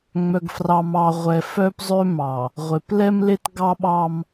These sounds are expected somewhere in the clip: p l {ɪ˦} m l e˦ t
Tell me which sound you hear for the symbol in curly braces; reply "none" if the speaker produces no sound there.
ɛ˦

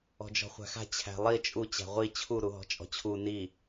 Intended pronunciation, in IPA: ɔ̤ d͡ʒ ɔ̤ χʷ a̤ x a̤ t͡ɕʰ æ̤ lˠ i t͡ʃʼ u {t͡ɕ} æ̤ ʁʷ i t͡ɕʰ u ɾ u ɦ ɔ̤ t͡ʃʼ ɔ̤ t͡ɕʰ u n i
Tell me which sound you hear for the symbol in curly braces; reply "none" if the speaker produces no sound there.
t͡ɕ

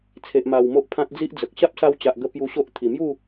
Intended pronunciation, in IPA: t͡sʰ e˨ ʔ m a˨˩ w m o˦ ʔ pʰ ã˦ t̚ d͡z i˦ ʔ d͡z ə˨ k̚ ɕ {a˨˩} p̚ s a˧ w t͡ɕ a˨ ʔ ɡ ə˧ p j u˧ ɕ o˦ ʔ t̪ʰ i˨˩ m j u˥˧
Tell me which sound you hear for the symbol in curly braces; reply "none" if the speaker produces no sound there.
a˦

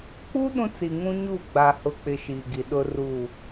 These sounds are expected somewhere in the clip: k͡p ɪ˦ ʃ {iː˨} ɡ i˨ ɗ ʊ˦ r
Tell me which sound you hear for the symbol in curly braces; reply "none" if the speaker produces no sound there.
iː˨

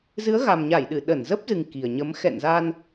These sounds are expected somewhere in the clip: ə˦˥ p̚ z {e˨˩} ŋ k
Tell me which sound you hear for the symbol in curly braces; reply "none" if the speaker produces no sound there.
ɨ˨˩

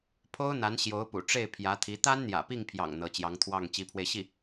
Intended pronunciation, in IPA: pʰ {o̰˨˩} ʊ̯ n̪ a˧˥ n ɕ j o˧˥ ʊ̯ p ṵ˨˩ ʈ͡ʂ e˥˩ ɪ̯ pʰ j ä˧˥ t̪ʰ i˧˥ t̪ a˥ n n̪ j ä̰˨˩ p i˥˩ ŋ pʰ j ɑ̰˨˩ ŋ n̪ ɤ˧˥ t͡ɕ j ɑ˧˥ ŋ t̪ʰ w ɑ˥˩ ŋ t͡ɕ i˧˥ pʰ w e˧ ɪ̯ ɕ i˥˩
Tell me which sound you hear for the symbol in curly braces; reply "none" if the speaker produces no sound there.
o˥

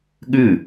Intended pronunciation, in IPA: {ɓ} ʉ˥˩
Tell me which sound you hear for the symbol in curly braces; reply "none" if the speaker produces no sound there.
ɠ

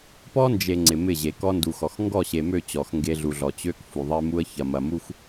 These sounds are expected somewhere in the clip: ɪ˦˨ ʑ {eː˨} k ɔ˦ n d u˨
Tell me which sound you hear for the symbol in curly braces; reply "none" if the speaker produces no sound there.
e˨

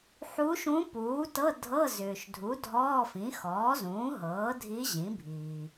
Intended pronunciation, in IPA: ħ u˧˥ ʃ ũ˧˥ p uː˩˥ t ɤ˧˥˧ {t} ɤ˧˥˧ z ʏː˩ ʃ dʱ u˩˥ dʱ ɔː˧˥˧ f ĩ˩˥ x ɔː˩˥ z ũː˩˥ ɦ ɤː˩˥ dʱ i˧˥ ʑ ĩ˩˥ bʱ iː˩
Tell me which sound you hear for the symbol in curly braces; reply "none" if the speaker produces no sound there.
dʱ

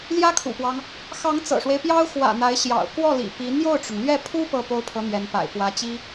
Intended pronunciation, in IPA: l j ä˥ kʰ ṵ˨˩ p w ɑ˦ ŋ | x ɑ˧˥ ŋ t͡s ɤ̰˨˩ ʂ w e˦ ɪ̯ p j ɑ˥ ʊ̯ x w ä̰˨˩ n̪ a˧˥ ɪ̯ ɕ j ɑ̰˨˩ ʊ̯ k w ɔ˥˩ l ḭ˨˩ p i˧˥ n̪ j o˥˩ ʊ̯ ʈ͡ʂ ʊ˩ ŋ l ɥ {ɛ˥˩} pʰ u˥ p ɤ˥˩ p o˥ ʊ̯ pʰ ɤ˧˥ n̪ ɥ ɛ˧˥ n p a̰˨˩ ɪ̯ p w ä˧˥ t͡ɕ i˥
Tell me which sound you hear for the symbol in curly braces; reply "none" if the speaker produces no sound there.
ɛ˥˩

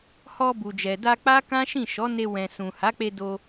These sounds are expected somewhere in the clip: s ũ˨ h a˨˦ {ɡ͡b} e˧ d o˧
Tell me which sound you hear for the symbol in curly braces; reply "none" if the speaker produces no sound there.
k͡p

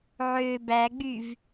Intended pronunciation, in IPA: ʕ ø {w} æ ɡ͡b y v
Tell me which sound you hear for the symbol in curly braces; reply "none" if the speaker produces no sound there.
b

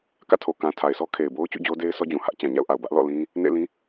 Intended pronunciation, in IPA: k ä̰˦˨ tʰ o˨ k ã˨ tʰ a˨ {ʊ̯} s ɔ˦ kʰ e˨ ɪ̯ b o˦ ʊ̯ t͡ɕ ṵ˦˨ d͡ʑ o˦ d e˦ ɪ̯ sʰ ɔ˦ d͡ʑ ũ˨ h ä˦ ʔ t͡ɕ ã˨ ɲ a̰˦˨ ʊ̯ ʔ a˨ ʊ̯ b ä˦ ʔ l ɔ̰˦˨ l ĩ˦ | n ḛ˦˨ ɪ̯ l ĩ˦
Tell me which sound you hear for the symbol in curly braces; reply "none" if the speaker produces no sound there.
ɪ̯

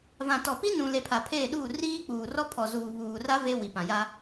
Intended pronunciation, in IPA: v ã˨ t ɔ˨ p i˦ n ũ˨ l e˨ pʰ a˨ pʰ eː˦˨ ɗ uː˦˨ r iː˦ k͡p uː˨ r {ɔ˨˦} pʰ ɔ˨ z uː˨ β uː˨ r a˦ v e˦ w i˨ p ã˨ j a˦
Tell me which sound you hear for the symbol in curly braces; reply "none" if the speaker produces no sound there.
ɔ˦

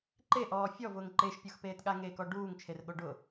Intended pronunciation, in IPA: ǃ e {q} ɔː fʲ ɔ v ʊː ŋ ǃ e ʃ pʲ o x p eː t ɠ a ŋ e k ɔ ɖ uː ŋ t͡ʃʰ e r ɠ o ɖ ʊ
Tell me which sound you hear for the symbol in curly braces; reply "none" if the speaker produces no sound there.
ʔ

